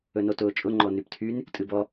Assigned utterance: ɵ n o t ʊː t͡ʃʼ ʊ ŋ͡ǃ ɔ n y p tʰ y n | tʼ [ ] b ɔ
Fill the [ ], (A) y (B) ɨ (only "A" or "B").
B